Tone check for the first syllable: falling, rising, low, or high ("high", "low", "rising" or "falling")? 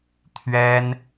high